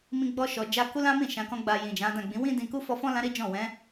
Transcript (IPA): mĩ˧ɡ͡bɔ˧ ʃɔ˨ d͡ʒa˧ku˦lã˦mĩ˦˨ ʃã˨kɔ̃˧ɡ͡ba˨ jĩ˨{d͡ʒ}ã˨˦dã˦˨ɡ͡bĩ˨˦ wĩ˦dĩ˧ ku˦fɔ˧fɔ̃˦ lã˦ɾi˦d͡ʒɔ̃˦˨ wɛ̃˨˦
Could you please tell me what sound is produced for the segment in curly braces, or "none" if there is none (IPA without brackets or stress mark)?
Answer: d͡ʒ